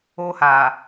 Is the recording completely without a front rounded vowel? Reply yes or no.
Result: yes